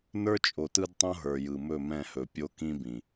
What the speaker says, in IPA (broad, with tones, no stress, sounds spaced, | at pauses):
n ə˞˦ t͡ʃʼ o˨ t ɯ˦ d tˤ õ˦ ɦ ə˞˨ j ɯ˨ m ɵ˦˨ m ɛ̃˦˨ h ɵ˨ pʲ o˦ k ĩ˦ b ĩ˨